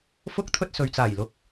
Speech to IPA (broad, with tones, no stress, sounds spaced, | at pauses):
f ʊ˥ k̚ t̪ʰ ɵ˥ t̚ s ɵ˨ ɥ t͡s aː˨˩ j l ʊ˨ k̚